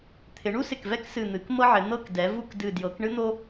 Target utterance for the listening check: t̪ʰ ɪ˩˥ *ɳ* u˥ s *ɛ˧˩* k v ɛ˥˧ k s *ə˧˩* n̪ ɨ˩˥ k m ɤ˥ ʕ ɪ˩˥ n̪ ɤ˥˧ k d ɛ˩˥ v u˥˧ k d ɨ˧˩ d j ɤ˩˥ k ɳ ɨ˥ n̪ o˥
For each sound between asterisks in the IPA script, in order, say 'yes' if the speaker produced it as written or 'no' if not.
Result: yes, no, no

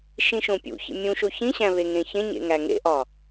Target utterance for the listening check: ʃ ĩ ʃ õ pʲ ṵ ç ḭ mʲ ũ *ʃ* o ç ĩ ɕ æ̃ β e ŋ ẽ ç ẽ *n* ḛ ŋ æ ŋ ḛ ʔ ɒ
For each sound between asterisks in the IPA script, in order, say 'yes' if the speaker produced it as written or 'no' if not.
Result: yes, no

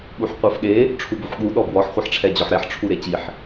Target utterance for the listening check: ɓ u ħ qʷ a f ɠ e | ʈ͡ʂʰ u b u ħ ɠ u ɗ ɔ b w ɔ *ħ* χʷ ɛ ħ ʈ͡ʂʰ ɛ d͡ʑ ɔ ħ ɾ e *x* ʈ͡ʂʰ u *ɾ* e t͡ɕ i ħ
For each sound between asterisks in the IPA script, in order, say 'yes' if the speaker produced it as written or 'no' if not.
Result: yes, no, yes

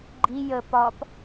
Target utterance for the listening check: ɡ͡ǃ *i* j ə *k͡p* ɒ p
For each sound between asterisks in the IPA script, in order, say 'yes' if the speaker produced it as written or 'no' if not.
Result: yes, no

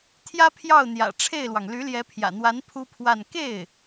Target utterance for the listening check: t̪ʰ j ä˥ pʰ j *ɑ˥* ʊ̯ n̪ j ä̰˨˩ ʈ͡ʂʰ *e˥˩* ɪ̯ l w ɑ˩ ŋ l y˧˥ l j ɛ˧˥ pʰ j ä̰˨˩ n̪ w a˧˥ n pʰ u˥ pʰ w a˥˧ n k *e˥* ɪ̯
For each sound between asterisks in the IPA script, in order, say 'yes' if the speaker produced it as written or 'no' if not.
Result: no, yes, no

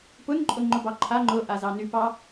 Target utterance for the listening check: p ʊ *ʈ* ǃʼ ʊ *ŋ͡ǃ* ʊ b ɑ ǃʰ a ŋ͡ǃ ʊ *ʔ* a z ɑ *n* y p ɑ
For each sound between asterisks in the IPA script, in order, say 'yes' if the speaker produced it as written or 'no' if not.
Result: no, yes, yes, yes

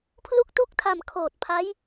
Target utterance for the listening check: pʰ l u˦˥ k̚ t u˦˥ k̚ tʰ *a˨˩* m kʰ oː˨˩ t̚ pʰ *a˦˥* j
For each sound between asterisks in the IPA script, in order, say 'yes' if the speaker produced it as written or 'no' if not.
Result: yes, yes

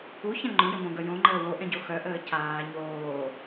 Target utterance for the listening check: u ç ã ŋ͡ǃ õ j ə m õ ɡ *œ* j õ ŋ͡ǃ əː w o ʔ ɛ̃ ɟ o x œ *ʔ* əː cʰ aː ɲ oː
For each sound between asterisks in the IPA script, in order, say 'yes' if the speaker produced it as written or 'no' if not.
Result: yes, yes

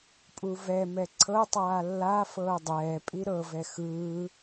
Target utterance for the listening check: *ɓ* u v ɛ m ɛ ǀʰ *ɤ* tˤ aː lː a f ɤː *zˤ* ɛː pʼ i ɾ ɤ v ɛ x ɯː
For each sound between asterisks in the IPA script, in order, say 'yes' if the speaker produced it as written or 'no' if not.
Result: no, yes, no

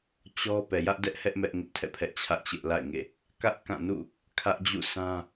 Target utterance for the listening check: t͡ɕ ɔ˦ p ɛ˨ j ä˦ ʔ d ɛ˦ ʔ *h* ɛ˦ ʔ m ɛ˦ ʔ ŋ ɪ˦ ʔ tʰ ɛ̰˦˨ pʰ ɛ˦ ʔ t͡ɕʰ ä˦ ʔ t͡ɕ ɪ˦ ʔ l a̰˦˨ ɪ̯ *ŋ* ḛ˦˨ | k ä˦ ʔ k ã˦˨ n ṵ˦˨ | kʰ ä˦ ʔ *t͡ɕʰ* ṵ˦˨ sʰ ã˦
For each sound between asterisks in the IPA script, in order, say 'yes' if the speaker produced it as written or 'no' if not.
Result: yes, yes, no

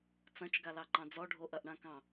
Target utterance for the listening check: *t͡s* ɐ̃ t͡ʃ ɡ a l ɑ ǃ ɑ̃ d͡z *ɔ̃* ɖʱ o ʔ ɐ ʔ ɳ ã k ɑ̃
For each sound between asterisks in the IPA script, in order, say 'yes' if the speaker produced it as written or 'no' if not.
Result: yes, no

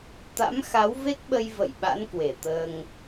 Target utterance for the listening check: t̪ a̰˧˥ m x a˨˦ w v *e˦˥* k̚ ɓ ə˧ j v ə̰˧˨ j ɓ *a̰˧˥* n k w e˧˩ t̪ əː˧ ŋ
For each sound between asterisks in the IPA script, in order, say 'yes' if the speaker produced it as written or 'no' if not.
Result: yes, yes

